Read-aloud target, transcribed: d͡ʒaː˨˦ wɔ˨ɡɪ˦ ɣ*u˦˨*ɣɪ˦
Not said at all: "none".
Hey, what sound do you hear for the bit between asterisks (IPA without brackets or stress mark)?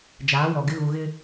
u˨